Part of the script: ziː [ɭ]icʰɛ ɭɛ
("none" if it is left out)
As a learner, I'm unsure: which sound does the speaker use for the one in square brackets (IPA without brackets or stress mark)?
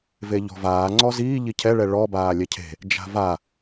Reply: ʎ